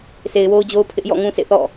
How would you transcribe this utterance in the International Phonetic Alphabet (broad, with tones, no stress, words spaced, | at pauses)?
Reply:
sʰe˨ɪ̯wo˦ʊ̯d͡ʑo˦ʊ̯ pʰɪ˦ʔ jɔ̰˦˨ŋũ˦sḛ˦˨ θɔ̰˦˨